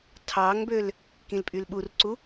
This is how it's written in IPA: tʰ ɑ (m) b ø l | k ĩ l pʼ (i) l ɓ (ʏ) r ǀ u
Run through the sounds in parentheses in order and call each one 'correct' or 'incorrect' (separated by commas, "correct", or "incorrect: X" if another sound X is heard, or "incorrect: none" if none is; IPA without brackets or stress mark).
incorrect: ŋ, incorrect: y, incorrect: u